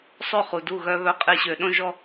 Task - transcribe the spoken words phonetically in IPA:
sˤø˥˧χu˧du˥˧ ɣœ˧βœ˧qʼe˧ ɕø˧ ɗõ˥˧ʒɔ˥˧

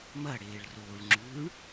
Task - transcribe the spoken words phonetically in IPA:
mɐ ɽeːɭroːɭŋ͡ǁʉːɳ

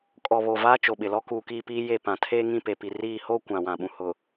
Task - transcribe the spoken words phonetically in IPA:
kʼɔ˨ βo˨vaː˦t͡ʃo˨ɓɪ˨ lɔ˦kuː˨kiː˦˨piː˦ je˦˨pã˨ tʰeː˦ŋĩ˦˨pe˨pi˨ riː˦˨ ho˦ kʷã˨wã˨ɓũ˨ hʊ˨

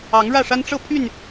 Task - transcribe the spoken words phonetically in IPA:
ɑ˨˦ŋɻä˥˨ʂa˦n ʈ͡ʂɤ˥˨pʰy˥˨n

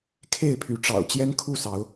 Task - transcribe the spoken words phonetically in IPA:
kʰe˥˨ɪ̯pʰy˨˦ʈ͡ʂɑ̰˨˩ʊ̯ t͡ɕjɛ˦nkʰu˥˨sɑ˨˦ʊ̯

